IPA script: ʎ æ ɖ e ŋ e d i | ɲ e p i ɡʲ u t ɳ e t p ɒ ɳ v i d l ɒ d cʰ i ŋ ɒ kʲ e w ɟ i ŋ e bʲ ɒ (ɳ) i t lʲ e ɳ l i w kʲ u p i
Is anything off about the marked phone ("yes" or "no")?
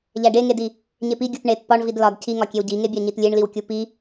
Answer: yes